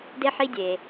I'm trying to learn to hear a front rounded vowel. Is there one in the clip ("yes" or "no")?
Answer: no